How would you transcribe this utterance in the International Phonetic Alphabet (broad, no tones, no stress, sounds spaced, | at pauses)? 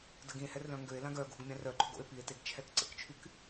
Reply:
d ə ɡ ĩ e̯ h ɛ r l œ̃ ŋ ɡ ø e̯ l ã ɡ œ ɡ ṳ ɡ mʲ ã r œ ǃ o̤ ɡ o̰ e̯ p i e̯ t e ɡ t͡ʃʰ ɛ k ǀ ə̰ k t͡ʃʰ y k